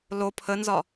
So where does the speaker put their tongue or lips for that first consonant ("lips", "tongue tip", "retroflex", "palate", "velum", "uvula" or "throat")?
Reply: tongue tip